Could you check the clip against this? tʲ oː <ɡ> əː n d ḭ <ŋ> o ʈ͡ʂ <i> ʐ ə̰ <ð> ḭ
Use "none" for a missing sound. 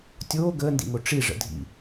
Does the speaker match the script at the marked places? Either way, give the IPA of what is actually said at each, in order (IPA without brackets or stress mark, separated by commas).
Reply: ɡ, ŋ, i, dʱ